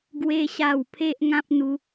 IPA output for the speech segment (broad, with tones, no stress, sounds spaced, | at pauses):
ɡ w e˦ ɕ a˥˧ w pʰ e˦ ʔ ŋ ã˦ p̚ n̪ u˧